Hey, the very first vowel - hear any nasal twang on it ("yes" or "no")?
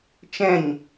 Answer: yes